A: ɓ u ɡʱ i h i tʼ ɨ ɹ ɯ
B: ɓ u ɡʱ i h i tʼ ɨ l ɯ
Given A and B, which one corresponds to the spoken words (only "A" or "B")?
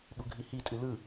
B